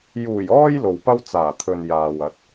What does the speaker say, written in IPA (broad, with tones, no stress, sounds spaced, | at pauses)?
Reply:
j uː˨˩ j ɔː˧ j l o˨ w p ɐ˥ w t͡s aː˨˩ t̪ʰ ɵ˨ n j aː˨ w ɐ˨˥ t̚